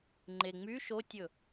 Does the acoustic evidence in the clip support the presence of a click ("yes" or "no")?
yes